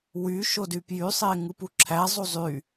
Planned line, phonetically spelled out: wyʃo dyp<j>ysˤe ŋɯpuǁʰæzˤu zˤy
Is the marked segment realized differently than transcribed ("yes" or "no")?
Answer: no